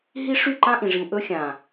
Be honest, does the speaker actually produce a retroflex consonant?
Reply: yes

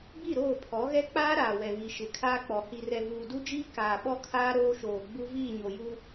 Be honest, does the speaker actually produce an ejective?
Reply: no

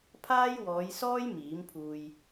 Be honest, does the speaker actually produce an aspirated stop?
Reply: yes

